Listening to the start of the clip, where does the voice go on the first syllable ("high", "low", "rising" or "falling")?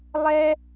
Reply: high